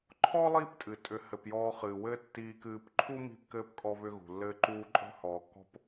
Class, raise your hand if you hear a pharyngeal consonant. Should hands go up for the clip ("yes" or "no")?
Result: no